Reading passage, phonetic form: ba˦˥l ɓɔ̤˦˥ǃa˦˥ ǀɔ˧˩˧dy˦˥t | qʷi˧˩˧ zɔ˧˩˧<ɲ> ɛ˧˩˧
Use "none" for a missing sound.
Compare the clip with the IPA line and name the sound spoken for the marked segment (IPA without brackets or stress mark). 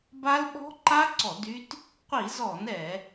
n